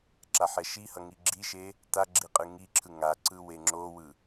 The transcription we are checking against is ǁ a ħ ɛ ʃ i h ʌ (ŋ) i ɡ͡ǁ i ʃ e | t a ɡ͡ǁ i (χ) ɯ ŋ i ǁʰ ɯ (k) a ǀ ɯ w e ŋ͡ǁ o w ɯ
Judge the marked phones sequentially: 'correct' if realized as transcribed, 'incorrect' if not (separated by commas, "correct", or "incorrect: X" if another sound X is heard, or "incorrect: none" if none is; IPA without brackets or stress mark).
correct, incorrect: qʼ, incorrect: ŋ